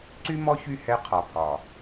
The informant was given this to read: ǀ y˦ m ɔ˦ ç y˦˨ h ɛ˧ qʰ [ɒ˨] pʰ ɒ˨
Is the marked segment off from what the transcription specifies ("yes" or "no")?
no